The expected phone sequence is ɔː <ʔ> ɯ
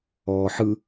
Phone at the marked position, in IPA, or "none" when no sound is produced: ħ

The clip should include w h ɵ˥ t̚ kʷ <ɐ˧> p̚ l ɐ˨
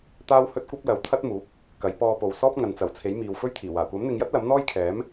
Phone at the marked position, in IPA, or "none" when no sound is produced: ɐ˥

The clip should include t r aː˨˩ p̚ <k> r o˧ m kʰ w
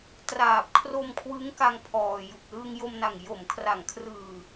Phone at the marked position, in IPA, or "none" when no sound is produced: kʰ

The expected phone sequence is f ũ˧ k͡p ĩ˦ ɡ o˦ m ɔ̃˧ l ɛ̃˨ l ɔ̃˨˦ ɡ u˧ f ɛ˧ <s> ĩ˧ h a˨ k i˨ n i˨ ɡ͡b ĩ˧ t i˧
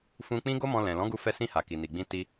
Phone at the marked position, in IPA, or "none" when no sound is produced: s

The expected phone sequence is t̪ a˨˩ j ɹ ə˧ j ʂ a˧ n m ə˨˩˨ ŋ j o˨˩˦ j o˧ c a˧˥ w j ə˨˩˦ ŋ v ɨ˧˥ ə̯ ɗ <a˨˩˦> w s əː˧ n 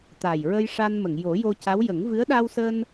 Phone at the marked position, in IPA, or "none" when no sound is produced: a˧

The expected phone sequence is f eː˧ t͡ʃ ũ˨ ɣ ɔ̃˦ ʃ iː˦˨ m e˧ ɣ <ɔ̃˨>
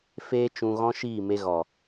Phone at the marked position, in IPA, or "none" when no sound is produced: ɔ˨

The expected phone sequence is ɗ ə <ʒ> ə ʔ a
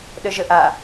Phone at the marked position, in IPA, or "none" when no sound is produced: ʒ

